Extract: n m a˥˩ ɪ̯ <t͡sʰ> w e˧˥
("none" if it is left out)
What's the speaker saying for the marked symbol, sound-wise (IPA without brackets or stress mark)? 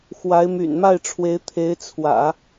ʈ͡ʂʰ